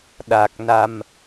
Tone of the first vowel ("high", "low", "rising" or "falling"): low